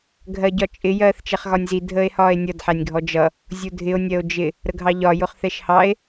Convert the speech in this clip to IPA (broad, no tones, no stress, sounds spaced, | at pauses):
ɡʱ ɜ ɟ ɒ t͡ʃʼ ɪ j ɜː θ t͡ʃ ɛ χ ɣ ɒ nʲ z i dʱ əː e̯ h ɒː e̯ nʲ ʌ d ħ æ nʲ ɡʱ ɔ d͡ʒ ʌ | zʲ u dʱ ɪ o̯ nʲ ɜ o̯ d͡ʒ ɪ | ɾ ə ɡʱ ɑ ʎ ɒ j ʊ χ θ ɛ ʃ h ɑ e̯